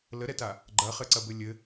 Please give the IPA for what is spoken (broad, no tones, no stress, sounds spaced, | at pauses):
l ə ɾ ɛ t a | ɡ͡ǃ ɐ χ ɘ ǀ ɐ b ɘ lʲ ɘ